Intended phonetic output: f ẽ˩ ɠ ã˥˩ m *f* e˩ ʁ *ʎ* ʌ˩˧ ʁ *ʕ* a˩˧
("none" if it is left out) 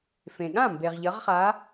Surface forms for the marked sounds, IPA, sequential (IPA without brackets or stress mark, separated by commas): b, ʎ, χ